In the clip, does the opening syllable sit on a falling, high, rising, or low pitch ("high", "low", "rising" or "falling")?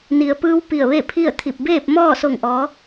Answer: low